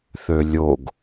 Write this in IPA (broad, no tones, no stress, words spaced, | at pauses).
θølʲoɡ